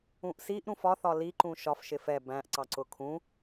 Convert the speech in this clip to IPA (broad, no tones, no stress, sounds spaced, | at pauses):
ũ ʔ s i ʔ ɾ ũ f ɒ θ ɒ l i ǃ ũ ʃ ɒ f ʃ ɪ f ɛ b æ̃ ʔ ǀ ɑ ǀ ʊ kʰ ũ